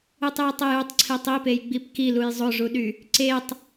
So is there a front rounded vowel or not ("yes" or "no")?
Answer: yes